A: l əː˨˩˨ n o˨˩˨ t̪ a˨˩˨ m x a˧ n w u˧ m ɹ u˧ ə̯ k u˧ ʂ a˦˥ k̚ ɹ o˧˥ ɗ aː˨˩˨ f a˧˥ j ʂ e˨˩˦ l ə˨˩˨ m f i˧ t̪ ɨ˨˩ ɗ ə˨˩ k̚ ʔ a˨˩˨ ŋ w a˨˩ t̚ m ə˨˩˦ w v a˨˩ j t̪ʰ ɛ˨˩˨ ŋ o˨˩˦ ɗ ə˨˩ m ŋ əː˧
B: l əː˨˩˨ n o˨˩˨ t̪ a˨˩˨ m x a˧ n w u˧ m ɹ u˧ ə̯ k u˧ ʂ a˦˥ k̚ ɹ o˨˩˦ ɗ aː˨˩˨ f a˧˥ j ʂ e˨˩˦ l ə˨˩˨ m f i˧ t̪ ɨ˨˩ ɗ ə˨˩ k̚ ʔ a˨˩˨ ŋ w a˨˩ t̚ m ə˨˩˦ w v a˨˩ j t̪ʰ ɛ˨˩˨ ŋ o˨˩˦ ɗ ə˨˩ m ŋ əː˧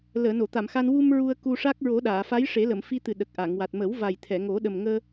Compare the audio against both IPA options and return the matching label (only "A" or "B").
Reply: B